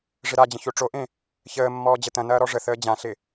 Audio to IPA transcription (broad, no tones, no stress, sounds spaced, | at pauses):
ʐ ɪ ɾ a d͡ʑ ə̃ ç o ʈ͡ʂ o ʔ ẽ | ç əː mː ɔː d͡ʑ ə t ɐ̃ n ɐː ɾ ɔ ʐ ə θ əː d͡ʑ ã ɬ ɪ